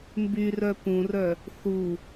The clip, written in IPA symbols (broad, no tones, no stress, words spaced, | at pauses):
mbyrœ pũrœ | θu